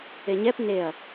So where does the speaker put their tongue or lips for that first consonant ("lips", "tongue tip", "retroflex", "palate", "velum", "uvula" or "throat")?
palate